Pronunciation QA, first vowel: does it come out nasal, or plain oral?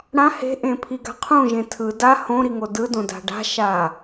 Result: nasal